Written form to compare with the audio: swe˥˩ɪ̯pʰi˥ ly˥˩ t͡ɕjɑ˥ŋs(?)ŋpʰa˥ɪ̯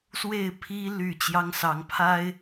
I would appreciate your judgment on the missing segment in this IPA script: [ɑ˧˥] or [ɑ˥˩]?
ɑ˧˥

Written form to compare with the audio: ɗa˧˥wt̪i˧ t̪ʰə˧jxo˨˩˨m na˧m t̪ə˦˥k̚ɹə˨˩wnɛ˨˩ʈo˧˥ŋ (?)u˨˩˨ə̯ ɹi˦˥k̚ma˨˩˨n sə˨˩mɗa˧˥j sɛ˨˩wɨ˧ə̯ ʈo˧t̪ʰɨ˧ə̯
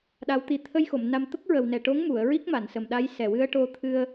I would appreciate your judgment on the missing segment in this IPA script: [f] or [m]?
m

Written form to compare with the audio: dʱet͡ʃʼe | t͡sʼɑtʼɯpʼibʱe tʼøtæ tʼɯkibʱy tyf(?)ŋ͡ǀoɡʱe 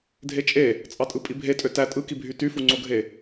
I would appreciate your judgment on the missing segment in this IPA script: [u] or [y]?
u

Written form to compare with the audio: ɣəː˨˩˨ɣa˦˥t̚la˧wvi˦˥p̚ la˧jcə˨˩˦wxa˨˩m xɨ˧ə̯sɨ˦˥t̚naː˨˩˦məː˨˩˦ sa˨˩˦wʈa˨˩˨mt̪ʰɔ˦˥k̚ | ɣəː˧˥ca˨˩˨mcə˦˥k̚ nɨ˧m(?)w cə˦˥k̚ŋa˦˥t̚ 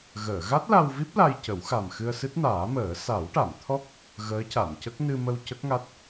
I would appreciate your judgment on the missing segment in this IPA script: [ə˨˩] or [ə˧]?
ə˧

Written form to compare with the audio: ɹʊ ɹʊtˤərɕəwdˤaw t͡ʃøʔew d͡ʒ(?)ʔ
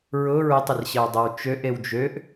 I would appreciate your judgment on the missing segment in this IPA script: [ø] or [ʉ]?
ø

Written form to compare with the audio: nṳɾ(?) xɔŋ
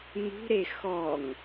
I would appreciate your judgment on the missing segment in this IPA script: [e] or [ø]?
e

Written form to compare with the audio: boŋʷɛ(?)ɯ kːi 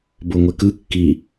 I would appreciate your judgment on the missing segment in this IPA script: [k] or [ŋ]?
k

